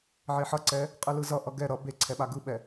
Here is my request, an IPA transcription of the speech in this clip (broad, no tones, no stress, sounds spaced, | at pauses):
ʕ e ħ ʌ ǀ ɛ | qʼ ɯ l ɯ z ʌ ʔ ʌ ɡ ɛ ɾ ʌ b e ǀʰ ɛ ɓ a ɡ ɯ ɓ ɛ